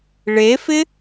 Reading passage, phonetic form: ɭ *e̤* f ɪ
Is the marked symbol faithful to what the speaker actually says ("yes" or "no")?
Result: no